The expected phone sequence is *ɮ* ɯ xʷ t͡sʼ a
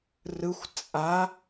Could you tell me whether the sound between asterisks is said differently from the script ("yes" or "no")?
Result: yes